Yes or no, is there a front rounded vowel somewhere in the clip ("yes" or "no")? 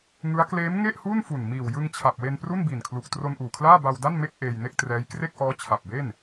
no